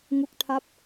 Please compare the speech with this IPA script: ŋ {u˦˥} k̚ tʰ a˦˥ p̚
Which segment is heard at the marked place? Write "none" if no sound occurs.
u˦˥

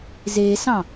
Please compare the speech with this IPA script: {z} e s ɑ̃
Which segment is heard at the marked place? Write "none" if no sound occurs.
z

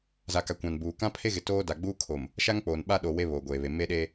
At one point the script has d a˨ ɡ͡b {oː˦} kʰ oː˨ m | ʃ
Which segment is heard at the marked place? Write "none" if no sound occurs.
uː˦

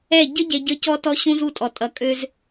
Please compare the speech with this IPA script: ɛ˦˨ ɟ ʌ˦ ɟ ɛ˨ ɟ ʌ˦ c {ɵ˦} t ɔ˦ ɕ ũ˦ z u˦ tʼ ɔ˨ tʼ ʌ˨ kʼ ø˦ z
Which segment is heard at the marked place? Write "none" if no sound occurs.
ɔ˦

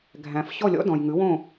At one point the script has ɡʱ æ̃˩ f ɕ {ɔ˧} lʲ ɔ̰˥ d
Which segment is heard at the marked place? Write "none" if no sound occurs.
ɔ˥˩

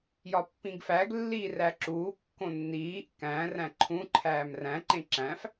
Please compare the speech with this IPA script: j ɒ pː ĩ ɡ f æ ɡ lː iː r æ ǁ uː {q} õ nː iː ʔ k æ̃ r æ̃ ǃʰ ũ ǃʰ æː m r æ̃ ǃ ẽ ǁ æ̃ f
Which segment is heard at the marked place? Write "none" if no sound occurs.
kː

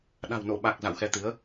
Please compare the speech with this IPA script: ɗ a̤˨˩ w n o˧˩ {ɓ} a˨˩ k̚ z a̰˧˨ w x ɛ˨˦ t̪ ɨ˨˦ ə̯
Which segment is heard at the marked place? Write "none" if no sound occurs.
ɓ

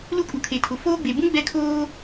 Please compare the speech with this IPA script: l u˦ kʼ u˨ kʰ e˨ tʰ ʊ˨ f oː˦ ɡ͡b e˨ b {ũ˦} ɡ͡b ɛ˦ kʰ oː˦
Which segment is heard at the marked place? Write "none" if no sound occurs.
ũ˦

